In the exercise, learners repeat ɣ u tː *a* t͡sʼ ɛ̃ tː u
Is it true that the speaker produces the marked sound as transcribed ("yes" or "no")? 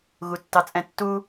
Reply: no